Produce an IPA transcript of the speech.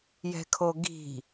jɛ̤kʰoɡi̤

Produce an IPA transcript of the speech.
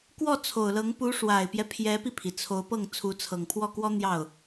kwɔ˥˩t͡sʰo˨˩ʊ̯lɤ˧˥ŋ pu˧˥ʂwa˨˩ɪ̯pjɛ˦ pʰjɛ˧˥pi˧pʰi˩ t͡sʰo˧˥ʊ̯pɤ˥˩ŋ t͡sʰu˧˥t͡sʰɤ˨˩ŋpʰwɔ˥˩kwɔ˥ n̪jɑ˥˩ʊ̯

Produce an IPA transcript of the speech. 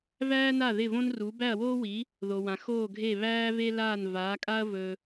væː˥na˥˩ ðɪ˥˩võ˥nru˩˥ bæ˥˩ɐ̯woː˥wi˩˥ | ðo˩wã˩ xoː˥˩ɡʱe˥˩ βæː˥ve˥laː˥˩n vaː˩˥kʼa˥ɐ̯ vɵ˧

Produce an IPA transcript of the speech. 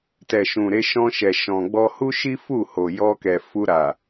tɛ˨ʃũ˨ ɾe˧ʃɔ̃˧ʃɛ˨ʃɔ̃˨ ɡ͡bɔ˧hu˦ʃi˦ fu˦˨ho˨jɔ˧kɛ˨ fu˧ɾa˨

